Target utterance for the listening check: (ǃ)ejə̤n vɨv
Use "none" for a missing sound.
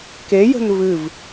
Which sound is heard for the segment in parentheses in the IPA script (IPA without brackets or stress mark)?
k